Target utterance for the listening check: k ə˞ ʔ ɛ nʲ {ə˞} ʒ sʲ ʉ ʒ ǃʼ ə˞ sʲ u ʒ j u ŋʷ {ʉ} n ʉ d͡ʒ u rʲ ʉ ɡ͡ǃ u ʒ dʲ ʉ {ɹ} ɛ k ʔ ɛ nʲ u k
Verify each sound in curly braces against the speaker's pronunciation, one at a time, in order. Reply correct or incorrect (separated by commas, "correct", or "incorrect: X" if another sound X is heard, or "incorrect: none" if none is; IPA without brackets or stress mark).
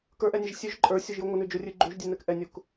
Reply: incorrect: ə, incorrect: ə, incorrect: n